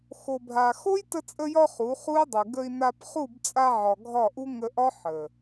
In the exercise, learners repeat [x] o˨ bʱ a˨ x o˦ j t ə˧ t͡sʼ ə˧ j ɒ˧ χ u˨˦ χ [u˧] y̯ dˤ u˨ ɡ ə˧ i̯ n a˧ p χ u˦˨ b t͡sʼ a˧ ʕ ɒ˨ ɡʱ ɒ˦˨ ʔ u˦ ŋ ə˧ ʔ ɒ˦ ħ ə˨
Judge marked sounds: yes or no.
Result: yes, no

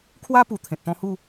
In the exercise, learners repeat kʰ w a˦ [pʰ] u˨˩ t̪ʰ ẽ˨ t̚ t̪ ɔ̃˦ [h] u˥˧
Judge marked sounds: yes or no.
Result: no, yes

